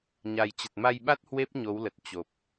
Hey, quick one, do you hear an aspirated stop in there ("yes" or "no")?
no